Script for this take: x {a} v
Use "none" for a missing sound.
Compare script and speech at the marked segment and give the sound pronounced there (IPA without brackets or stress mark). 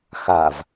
a